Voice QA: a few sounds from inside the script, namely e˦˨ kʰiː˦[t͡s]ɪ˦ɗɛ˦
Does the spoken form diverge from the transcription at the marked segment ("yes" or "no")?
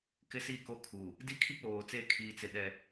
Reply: no